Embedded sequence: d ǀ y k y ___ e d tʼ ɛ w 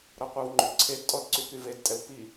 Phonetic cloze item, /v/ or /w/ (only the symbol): v